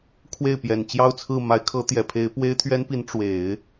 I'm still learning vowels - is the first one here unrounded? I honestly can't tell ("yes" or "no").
yes